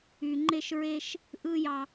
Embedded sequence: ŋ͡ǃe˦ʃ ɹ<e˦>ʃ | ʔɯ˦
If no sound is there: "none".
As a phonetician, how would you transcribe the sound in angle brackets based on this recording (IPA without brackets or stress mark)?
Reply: e˦